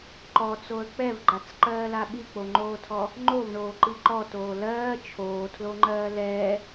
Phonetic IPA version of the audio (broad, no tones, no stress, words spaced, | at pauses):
ǃɔt͡soə̯ k͡pɛvɡ͡ǃat͡sǃɜːla ɓik͡poŋ͡ǃoːtʰɔ | ŋ͡ǃovɳoːǃi ǃɔtoː lɜː t͡ʃʰoːtʰloŋ͡ǃɜː lɛː